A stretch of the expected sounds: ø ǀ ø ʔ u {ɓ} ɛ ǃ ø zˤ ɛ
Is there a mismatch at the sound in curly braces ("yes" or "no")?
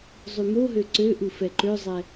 yes